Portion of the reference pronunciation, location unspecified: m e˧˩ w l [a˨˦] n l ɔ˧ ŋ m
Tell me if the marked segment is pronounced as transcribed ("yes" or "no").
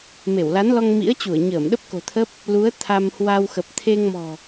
yes